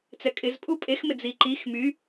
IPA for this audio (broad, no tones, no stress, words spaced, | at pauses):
t͡sɛkʼɪz pʼupʼex mɪd͡ziǃix my